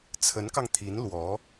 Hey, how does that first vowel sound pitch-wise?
rising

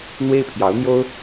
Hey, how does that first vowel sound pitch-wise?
high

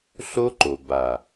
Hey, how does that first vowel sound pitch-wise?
high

